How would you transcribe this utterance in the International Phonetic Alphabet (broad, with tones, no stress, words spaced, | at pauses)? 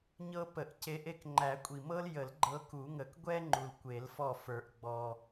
ɲɤ˥pə˨˩˦ʔce˧˥ʔe˥k ŋ͡ǃæ˨˩˦kʷʼi˨˩mɤ˥ljə˨˩˦l ɡ͡ǃɤ˧˥ku˨˩˦ŋə˨˩˦k ɡʷɛ˥ ŋ͡ǃu˨˩lkʷe˨˩˦lfɔ˦˨fə˞˨˩˦ʔ ɡ͡bɔ˨˩